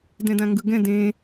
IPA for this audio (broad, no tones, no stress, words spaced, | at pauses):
dɛ̃dãŋɡɯɡɛ̃ dẽ